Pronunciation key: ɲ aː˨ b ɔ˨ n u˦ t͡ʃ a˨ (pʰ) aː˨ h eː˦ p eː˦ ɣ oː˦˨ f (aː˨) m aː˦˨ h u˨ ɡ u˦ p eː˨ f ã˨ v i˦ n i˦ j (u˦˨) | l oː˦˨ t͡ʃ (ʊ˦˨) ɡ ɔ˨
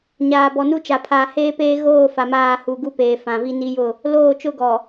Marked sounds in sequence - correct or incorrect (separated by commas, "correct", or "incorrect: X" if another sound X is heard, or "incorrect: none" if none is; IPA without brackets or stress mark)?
correct, incorrect: a˨, incorrect: ʊ˦˨, incorrect: ʊ˦